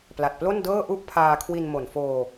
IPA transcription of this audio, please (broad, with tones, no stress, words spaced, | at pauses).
pla˨˩t̚plo˥˩ndɤː˥˩ ʔu˥˩ʔpʰaː˧kʰwi˧n mo˨˩nfoː˧